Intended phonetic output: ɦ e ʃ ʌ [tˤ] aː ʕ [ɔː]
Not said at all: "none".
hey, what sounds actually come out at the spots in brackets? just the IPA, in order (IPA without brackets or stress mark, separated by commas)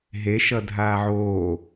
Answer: dʱ, oː